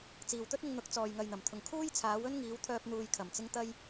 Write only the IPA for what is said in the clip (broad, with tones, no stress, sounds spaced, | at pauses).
t͡s iː˨ w t̪ ɵ˥ t̚ ɪ˧ ŋ n̪ ʊ˨˥ k̚ t͡s ɔː˨ j ŋ ɐ˨ j n̪ ɐ˨˩ m t̪ʰ ʊ˨˩ ŋ kʰ uː˥ j t͡sʰ aː˨˥ w ɵ˥ n ŋ iː˨˧ w t̪ʰ œː˧ p̚ n̪ uː˨ j kʰ ɐ˨˩ m t͡s ɪ˧ ŋ t̪ ɐ˧ j